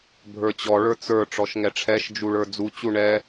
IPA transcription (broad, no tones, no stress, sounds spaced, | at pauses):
bʱ ə˞ t͡ɕ ɔ ɭ ə˞ t͡s ə˞ ʈ͡ʂ ɔ ʃ ŋ ɛ ʈ͡ʂʰ ɛ ʃ d͡ʒ u ɭ ə˞ d͡z u t͡ɕ u ɳ ɛ